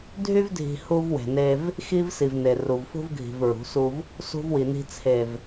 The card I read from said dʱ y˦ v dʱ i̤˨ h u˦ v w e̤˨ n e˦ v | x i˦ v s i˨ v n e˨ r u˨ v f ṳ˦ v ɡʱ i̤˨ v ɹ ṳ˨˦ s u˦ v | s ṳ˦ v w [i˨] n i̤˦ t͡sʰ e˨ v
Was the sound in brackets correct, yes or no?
yes